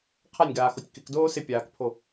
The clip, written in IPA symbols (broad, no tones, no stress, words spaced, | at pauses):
qʰanʲɡaːxotʲ kɪkdoː sɪpʲaːkpʰo